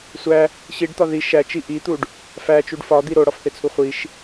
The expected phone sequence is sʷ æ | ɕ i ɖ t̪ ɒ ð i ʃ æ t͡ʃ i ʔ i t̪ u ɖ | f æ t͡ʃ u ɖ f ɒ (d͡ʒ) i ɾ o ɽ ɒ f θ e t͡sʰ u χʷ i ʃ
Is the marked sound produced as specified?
no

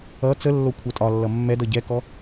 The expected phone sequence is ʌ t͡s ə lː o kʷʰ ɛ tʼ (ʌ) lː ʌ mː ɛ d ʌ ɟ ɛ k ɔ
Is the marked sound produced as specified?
no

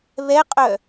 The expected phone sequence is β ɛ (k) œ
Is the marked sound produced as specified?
no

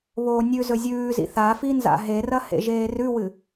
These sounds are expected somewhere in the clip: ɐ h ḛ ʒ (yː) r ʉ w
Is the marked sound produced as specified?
no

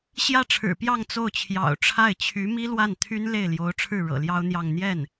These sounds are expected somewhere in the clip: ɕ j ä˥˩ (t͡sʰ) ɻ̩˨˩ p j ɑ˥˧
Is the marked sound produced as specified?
no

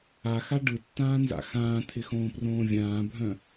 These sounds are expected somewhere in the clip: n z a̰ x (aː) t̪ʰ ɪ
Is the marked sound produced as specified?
no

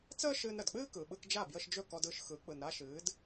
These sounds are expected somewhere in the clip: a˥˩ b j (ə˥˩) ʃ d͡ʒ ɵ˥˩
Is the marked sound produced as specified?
no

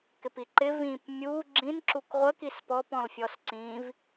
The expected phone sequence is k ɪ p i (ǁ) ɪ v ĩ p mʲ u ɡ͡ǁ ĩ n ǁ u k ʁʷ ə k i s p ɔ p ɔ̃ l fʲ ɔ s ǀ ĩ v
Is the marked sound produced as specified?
no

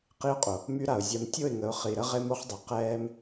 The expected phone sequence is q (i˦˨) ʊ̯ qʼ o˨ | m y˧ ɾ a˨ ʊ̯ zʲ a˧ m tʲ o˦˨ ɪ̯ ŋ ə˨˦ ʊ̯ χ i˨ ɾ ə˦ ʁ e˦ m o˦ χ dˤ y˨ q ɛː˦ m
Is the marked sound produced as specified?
no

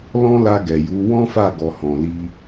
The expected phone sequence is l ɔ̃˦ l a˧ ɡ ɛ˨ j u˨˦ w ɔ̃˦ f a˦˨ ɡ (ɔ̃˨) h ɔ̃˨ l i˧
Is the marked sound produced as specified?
no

